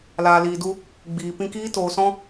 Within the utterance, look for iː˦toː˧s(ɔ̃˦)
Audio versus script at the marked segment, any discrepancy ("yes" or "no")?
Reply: no